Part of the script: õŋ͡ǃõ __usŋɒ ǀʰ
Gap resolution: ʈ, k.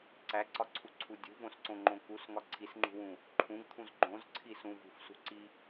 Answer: k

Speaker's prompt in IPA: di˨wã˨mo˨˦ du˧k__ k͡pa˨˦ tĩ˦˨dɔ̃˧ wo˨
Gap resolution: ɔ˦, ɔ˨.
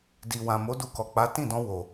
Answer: ɔ˨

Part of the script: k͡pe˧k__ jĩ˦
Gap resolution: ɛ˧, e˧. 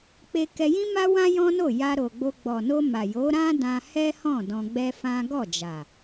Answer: ɛ˧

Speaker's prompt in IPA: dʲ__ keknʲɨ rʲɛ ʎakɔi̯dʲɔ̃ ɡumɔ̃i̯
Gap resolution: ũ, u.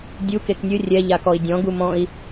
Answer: u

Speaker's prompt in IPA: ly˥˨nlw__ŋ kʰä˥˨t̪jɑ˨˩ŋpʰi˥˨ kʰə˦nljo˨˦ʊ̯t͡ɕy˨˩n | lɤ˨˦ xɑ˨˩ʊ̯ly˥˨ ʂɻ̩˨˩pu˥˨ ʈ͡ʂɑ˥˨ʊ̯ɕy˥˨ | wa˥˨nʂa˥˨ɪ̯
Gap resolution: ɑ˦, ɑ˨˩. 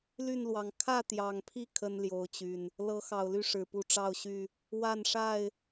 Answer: ɑ˨˩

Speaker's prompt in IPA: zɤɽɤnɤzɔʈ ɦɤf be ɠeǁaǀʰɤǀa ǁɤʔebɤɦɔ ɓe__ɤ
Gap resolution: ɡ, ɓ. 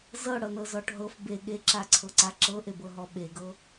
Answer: ɡ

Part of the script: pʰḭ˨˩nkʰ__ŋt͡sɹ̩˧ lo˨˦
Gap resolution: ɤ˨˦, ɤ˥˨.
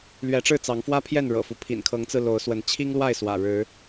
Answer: ɤ˨˦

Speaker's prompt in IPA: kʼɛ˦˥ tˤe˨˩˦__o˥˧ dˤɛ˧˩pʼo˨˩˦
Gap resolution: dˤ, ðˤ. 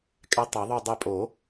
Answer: ðˤ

